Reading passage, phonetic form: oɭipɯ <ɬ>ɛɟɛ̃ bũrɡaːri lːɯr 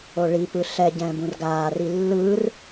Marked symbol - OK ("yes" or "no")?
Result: yes